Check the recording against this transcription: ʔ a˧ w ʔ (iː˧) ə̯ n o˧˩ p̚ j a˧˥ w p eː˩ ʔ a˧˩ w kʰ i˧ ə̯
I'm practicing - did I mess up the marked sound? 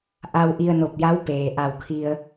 yes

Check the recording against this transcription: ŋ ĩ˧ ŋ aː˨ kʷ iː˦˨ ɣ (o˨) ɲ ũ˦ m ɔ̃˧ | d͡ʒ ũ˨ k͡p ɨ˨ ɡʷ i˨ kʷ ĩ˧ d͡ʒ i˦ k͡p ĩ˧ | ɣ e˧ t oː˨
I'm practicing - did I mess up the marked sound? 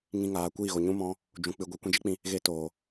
no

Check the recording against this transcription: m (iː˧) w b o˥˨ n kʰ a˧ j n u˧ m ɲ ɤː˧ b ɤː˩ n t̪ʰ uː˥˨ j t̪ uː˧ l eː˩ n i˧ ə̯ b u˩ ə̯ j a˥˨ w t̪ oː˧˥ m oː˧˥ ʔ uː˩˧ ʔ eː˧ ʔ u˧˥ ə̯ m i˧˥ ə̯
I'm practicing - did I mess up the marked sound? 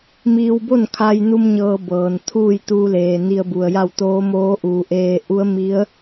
no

